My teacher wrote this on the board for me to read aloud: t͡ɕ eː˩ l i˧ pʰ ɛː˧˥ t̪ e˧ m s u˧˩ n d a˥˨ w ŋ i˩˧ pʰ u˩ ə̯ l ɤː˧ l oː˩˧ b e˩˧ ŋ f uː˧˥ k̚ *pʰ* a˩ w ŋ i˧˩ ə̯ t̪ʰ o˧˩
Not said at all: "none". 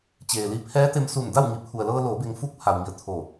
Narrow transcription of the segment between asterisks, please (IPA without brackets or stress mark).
pʰ